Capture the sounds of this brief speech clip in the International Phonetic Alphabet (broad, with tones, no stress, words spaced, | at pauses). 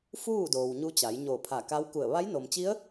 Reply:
fuː˥˨doː˩wɲu˧ t͡ɕa˩˧jɲo˧˩pʰa˧˩ka˧˥w ku˧˩ə̯ ʋa˧˥jno˩mt͡ɕi˧˥ə̯